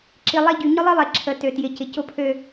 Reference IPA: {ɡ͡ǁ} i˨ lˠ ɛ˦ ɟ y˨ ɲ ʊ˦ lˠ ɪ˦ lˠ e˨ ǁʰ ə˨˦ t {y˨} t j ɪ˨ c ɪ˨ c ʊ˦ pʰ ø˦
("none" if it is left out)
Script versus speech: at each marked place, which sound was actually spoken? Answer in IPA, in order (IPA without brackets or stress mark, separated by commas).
ǁ, ø˨